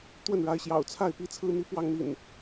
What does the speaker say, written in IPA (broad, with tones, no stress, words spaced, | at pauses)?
t̪wə˥˨nɻa˨˦ɪ̯ɕjɑ̰˨˩ʊ̯ t͡sʰa˥˨ɪ̯pi˥˨t͡sʰɹ̩˦n̪i˦ pwɑ˦ŋn̪ḭ˨˩n